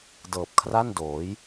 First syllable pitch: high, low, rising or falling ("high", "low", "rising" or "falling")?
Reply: low